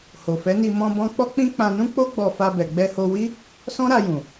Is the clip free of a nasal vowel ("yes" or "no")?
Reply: no